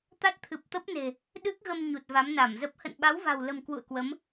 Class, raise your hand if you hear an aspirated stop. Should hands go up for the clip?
yes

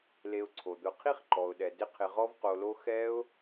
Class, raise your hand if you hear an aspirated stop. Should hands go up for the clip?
yes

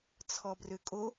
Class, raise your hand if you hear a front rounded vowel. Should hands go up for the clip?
yes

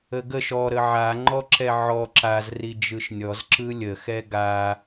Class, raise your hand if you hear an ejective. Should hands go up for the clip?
no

